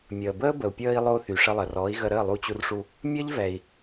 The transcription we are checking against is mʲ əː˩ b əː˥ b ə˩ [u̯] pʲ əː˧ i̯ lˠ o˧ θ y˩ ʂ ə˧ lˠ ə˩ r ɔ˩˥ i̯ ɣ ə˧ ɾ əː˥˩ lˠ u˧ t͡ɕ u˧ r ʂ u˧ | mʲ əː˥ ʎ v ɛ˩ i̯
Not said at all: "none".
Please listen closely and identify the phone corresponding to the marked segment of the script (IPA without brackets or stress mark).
u̯